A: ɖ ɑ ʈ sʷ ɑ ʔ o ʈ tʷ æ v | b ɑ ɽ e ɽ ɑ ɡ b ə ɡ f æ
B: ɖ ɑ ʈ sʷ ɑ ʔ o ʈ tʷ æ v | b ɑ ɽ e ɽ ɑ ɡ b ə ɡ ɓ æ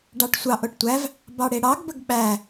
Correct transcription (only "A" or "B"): B